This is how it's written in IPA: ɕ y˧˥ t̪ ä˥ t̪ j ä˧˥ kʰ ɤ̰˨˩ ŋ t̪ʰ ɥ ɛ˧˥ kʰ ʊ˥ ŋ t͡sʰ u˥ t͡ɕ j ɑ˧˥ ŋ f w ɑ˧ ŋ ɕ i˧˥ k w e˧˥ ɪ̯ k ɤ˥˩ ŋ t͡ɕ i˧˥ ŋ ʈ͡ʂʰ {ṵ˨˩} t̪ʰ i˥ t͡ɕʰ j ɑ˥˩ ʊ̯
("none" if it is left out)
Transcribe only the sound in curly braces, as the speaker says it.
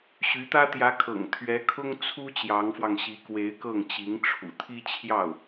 ṵ˨˩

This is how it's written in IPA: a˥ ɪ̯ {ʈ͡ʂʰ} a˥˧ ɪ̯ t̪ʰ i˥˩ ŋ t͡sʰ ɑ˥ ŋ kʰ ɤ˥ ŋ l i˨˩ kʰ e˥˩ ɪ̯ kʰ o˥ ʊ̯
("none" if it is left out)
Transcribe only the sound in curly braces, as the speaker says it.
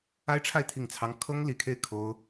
ʈ͡ʂʰ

